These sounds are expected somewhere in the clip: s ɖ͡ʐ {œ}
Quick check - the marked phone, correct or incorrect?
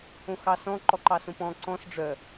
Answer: correct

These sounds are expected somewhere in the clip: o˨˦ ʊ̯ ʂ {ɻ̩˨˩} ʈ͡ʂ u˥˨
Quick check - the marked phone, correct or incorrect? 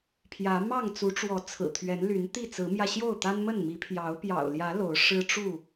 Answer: incorrect: ɻ̩˦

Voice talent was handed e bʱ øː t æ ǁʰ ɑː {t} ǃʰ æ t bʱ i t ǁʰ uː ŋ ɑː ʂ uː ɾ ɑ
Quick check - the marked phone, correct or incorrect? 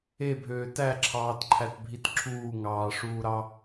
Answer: correct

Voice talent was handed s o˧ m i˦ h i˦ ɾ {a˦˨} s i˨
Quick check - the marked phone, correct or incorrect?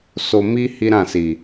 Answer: incorrect: ã˦˨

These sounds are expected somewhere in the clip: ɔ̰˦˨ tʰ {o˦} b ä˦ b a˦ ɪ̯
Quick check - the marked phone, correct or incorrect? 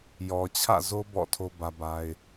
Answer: correct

